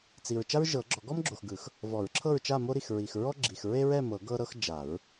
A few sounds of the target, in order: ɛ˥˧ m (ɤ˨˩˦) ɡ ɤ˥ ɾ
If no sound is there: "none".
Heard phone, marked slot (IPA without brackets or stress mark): ɤ˨˩˦